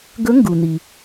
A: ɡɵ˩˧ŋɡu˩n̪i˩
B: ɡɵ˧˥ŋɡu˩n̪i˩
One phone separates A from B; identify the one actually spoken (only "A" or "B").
B